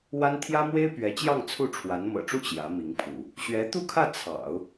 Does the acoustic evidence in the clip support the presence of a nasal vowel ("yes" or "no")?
no